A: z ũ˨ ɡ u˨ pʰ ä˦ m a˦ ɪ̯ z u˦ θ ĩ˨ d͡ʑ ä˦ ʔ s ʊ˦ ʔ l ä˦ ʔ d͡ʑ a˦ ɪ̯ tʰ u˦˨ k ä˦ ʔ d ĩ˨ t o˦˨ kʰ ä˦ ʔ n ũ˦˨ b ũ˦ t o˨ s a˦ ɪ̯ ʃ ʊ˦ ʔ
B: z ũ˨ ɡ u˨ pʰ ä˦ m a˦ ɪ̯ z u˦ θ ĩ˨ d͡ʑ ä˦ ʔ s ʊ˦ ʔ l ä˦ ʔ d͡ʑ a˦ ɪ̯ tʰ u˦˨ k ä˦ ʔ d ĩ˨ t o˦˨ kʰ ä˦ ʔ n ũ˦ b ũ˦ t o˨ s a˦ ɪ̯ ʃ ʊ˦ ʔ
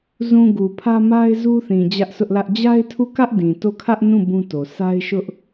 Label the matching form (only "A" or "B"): A